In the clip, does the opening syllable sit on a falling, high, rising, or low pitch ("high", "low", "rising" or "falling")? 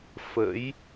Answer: rising